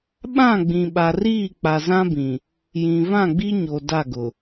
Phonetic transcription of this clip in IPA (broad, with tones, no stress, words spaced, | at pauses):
ɓã˦˨ɡ͡bĩ˨ɓa˨riː˦˨ k͡pa˨zã˦bĩ˨ | jĩ˨ vã˦˨ɡ͡bi˦ɲo˨ da˦˨ɡʊ˨